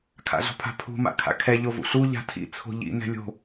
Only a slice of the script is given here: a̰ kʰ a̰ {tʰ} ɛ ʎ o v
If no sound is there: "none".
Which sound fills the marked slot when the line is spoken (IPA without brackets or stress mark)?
kʰ